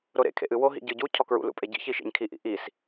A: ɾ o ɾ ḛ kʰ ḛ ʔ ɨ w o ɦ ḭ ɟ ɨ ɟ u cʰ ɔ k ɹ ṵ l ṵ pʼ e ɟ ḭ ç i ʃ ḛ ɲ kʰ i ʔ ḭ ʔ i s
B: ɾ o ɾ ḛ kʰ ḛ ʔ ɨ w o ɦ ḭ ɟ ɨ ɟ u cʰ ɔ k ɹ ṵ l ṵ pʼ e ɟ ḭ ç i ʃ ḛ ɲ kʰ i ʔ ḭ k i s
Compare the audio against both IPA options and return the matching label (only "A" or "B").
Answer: A